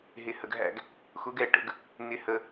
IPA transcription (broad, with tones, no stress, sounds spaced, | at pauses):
ɦ ɪ˧˩ h ə˧ ɡ ɦ æ̰˥˧ ɡ | x ʊ˧˥ ɡ ɛ˥˩ ʈ ə̰˧ ɡ | n̪ ɪ˧ h ə˧